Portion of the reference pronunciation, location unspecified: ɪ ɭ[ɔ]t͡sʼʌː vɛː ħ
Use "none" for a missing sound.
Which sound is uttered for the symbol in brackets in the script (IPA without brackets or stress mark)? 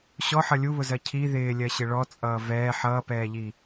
ɔ